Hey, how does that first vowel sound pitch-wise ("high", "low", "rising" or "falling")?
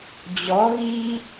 rising